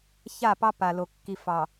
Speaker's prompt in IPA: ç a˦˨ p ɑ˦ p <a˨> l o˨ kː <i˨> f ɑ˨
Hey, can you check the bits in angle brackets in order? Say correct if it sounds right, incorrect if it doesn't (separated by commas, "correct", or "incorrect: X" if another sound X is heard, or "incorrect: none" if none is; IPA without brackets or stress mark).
correct, correct